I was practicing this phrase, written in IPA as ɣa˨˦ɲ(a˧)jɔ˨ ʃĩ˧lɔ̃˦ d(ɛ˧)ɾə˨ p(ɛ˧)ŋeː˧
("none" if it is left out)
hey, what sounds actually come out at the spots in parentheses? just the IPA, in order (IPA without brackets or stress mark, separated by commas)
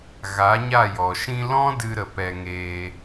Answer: a˦˨, ɨ˧, ɛ˧